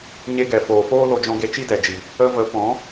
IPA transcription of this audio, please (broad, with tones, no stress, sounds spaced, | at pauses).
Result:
ɲ e˧ ɡ ɛ˨ f oː˨ f oː˦ l o˧ d͡ʒ ɔ̃˧ ɡ e˧ t͡ʃ i˦ d ɛ˨ d͡ʒ i˨ | ə˧ v ə˨˦ p ɔ̃˨˦